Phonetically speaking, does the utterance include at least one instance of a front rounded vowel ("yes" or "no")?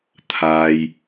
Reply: no